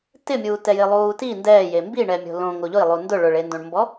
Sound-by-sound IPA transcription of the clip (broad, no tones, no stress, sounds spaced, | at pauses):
t ɪ mʲ uː t ɛ j ɪ lˠ uː t i n d ɛː j e m b i ɳ ɛ mʲ o̤ l õ ŋ o ʎ ʊ i̯ lˠ u n d ʊ ɭ ʊ ɭ e n d õ ɳ m b ɔ